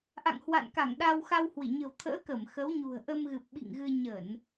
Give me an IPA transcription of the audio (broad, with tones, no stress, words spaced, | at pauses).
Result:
ʔa̰˧˨ŋhwa̰˧˨nka˧˩ŋ ɗa˧wxa˧whwi˧˩ ɲə̤˨˩wt̪ʰə̰ː˧˥ kə˧˩m xə˨˦w ɲṳ˨˩ə̯ʔə˧mɣɨ˨˩p̚ ɓḭ˧˨ŋɣɨ˧ ɲə˧˩˨n